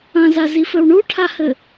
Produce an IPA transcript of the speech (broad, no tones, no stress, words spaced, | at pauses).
ɐ̃zazifɘw ɳuʈʰahɘ